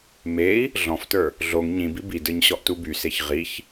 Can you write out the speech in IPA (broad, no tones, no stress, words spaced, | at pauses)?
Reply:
mei̯ | ɮɔ̃ftə˞ | ɮoŋ ɲĩbi bidə˞ɲɕɔʔtu byseç ʁiç